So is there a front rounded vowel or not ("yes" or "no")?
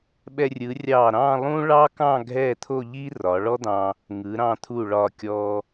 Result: no